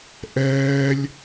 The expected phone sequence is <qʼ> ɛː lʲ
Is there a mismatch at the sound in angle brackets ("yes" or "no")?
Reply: yes